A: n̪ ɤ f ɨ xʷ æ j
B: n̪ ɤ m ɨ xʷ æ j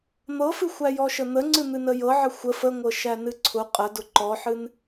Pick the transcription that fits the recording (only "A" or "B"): A